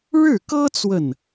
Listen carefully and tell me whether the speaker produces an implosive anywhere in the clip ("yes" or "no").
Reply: no